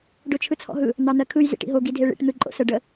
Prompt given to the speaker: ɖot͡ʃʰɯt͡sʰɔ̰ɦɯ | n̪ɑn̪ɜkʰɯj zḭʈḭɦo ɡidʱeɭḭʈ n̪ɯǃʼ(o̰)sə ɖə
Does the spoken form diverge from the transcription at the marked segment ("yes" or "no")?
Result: no